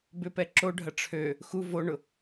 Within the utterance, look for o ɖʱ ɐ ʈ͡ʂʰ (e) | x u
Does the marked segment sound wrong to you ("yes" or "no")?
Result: yes